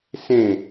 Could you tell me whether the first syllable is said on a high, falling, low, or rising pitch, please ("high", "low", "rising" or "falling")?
falling